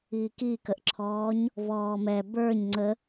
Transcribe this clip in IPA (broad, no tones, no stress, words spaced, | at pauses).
ikikəʔǁʰɔːɲ | vɔːmɛ bə˞ɲ ŋ͡ǀə